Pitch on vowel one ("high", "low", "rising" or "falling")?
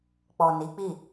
low